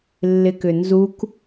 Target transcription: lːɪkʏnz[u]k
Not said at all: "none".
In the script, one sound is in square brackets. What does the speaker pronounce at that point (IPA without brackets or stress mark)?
u